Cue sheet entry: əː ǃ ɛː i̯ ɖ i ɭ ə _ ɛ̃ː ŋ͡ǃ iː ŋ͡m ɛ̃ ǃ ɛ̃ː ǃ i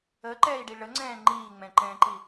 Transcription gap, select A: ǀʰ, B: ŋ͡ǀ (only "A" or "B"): B